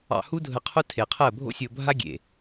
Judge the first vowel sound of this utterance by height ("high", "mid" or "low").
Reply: low